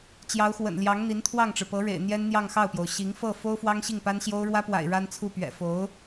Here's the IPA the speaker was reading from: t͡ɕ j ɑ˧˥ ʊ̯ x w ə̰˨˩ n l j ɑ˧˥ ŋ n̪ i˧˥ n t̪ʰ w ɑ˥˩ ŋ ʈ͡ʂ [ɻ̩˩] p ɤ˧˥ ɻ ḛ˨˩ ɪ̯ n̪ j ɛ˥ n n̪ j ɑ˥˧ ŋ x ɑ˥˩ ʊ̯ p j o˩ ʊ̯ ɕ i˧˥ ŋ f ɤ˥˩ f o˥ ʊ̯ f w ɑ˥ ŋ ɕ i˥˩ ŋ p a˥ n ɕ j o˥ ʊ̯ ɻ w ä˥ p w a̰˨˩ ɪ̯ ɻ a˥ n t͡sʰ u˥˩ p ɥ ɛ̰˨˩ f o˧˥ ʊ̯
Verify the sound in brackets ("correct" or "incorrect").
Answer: correct